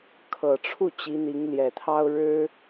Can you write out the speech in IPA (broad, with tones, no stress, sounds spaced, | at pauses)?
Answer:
kʰ ɤ˨˩ ʈ͡ʂʰ u˥˩ t͡ɕ i˧˥ n̪ i˧˥ ŋ l j ɛ˨˩ t̪ʰ ɑ˥ ʊ̯ ɻ ɻ̩˥